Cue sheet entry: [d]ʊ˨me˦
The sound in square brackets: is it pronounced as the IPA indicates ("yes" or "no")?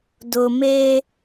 yes